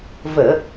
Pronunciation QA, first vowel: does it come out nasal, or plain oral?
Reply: oral